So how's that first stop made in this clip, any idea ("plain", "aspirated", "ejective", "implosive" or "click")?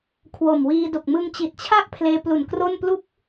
aspirated